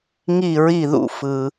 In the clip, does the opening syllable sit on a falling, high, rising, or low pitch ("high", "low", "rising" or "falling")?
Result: falling